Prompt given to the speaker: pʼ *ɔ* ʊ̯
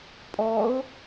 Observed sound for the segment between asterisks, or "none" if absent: ɔ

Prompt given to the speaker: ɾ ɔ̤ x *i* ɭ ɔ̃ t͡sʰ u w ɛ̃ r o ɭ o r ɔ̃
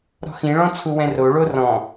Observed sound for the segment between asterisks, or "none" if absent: ĩ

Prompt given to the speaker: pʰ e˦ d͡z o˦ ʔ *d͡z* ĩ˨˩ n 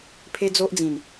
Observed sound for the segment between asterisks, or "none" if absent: d͡z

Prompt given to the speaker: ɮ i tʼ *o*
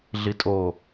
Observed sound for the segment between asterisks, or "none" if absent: o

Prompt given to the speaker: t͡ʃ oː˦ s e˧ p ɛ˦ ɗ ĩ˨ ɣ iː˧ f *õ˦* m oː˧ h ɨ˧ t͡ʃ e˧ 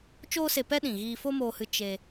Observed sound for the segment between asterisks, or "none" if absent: o˦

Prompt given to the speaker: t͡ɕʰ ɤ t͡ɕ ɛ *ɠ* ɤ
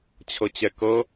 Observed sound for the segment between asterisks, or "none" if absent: k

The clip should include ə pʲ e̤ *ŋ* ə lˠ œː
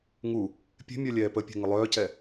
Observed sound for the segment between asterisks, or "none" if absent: ŋ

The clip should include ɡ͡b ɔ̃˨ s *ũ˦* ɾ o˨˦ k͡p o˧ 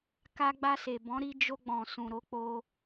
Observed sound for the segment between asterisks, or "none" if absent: ũ˨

